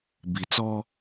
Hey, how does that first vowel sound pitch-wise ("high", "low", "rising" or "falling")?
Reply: low